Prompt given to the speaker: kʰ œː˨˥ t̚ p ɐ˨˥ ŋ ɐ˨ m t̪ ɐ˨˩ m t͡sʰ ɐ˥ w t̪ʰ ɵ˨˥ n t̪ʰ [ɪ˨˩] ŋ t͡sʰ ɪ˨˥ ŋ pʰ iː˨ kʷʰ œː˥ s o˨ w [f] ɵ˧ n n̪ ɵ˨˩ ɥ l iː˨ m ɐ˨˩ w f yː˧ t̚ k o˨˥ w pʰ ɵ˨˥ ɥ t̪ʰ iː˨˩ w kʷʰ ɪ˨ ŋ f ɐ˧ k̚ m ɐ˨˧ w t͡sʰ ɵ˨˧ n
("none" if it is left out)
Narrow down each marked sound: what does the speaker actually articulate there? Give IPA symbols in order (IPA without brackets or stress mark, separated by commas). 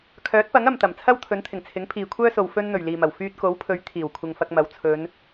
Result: ɪ˨˩, f